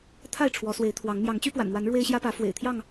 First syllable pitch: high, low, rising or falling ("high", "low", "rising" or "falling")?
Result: falling